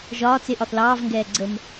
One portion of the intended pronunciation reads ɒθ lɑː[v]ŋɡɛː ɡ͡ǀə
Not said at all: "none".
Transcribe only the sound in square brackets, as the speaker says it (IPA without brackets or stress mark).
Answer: v